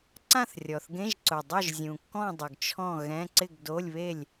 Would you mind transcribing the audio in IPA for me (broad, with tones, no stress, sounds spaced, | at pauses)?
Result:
ǀ ã˥˨ θ rʲ ɔ˨˩ θ ɡ ẽ˧˥˧ ʒ ǀ ʊ˨˩ dˤ ʊ˥˨ ʒ zʲ ũ˨˩ kː ɔ̃˥˨ dˤ ʊ˨˩ ɡ t͡ʃʰ ɔ̃˥˨ ɣ ɛ̃˧˥˧ ǀ ɪ˥˨ ɡ d o˧˥˧ lʲ β e˥˨ lʲ